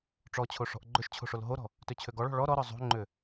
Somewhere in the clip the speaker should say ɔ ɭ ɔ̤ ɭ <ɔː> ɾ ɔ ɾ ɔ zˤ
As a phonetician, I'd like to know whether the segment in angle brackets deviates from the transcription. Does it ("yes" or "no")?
yes